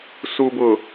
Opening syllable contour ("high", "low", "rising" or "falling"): low